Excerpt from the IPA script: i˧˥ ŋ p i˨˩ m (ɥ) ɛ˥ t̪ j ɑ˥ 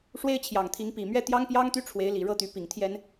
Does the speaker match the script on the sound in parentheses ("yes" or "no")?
yes